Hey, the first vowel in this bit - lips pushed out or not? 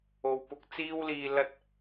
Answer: yes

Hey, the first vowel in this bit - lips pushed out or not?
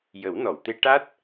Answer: no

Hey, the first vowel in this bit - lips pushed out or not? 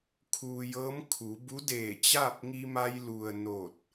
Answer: yes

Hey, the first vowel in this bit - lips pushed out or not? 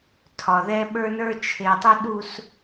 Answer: yes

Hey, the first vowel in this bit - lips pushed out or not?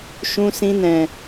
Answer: yes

